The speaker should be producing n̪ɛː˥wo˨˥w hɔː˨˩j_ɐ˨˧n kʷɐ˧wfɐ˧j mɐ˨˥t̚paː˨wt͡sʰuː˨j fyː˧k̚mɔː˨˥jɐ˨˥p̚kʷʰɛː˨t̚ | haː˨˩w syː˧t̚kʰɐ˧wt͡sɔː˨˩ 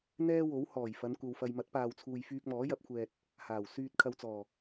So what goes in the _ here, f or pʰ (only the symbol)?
f